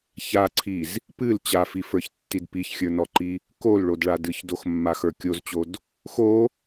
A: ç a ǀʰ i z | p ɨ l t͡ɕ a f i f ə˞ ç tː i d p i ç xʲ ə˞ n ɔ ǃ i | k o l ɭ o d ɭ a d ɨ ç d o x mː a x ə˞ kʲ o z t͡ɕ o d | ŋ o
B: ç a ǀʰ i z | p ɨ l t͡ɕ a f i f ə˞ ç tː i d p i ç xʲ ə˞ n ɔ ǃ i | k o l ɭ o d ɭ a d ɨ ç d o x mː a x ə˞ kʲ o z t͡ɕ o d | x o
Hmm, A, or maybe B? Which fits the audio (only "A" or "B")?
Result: B